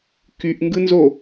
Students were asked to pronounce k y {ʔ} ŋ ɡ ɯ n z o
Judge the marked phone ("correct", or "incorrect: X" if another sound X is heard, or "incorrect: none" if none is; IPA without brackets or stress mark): correct